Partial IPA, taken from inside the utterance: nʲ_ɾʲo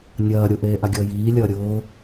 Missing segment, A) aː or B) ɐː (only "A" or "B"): B